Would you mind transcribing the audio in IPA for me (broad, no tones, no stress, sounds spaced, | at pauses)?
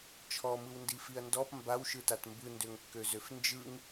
t͡ʃʰ ɔ m ɯ w n d i f i ɐ̯ n d ɔ p m b a w ʃ ɯ t a t m b ɯ n d ø ŋ kː ø z ø f n d͡ʒ ɯ ŋ